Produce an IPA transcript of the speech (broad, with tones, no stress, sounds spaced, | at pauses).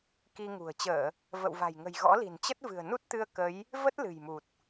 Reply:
k i˧ ŋ ṳ˨˩ ə̯ t͡ɕ əː˧˩˨ | v ə̰˧˨ w v a̤˨˩ j ŋ ə̤˨˩ j ɣ ɔ̰˧˥ l i̤˨˩ n t͡ɕ ə˦˥ t̚ v ɨ̤˨˩ ə̯ n u˦˥ t̚ t̪ ɨ˧ ə̯ k ə˨˦ j | v ə˦˥ t̚ l ɨ̤˨˩ j m u˨˩ t̚